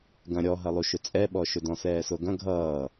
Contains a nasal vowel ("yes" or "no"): yes